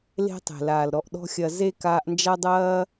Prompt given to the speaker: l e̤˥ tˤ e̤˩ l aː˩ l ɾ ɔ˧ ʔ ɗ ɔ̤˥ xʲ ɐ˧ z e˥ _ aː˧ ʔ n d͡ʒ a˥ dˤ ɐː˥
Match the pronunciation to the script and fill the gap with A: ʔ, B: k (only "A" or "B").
B